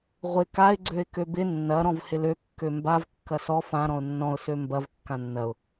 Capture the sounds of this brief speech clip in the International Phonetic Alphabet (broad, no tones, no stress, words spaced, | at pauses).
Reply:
ʁʷɪ kaɪ̯ ɡ͡ǀøɪ̯købɪ nːɐ ɾɔ̃vhɪlø kːømbav kːɐsɔ fã ɾɔ̃ʊ̯nːɔ̃ʊ̯ sømbɐv kːãnːɐʊ̯